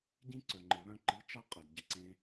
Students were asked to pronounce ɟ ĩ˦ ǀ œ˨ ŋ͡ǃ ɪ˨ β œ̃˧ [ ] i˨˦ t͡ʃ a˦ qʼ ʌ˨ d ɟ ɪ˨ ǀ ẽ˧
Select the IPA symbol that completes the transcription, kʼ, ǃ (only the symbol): ǃ